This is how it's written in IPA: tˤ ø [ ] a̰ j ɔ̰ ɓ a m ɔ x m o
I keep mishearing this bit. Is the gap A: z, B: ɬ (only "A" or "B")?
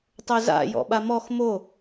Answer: A